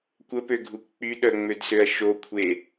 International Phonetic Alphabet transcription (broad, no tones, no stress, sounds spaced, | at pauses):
kʷ ə p ø ɡʱ u kʷ k͡p y ɗ œ ŋ͡m ø d s ø ɐ̯ ʃ o kʷʰ e